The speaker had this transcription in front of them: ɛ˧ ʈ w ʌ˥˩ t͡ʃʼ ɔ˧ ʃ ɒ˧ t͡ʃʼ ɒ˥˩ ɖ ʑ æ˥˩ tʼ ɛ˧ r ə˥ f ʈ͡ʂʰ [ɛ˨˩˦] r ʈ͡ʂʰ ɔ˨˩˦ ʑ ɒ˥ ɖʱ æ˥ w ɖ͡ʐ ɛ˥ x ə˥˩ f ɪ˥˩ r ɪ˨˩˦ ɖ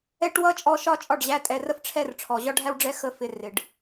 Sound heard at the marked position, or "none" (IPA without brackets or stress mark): ɛ˥˩